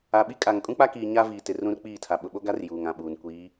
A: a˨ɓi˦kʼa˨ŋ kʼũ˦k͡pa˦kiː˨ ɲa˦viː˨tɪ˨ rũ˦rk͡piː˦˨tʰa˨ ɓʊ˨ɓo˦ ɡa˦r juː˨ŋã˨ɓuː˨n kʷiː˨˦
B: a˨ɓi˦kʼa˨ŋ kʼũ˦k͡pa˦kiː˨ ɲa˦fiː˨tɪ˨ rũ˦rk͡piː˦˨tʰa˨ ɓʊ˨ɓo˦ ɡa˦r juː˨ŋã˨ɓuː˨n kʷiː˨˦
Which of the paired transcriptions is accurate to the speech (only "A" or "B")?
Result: A